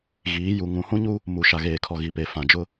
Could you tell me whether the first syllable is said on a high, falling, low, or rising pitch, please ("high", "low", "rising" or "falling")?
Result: rising